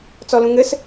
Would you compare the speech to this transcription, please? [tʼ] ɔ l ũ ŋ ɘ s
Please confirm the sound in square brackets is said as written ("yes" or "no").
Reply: no